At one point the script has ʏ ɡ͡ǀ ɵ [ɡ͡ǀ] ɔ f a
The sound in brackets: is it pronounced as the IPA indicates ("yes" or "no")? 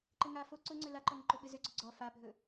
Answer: yes